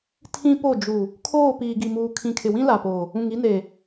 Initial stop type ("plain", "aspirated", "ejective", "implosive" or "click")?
aspirated